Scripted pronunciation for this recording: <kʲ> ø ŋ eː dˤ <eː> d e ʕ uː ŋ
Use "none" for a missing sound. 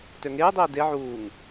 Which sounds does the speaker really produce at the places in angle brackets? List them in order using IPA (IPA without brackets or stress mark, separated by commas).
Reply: t, eː